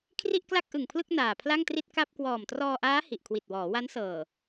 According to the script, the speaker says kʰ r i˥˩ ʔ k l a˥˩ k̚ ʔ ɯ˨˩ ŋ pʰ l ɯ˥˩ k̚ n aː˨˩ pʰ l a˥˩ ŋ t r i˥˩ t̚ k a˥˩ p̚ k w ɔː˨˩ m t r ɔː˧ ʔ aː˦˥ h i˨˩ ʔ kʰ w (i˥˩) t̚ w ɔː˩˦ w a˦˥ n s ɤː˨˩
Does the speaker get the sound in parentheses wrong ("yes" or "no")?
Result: yes